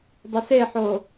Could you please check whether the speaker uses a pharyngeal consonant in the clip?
yes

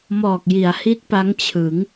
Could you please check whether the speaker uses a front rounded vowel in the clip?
no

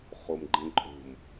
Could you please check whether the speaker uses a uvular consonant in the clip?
yes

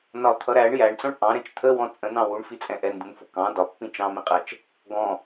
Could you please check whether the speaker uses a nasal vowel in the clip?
yes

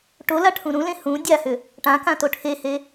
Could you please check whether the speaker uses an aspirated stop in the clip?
yes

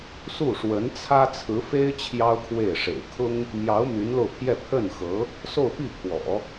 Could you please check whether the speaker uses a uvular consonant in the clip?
no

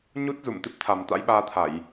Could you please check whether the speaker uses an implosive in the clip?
yes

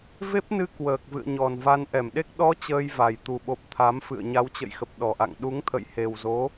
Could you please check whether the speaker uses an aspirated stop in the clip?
yes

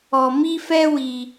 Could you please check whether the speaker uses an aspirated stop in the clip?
no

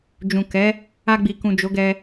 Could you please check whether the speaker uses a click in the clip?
no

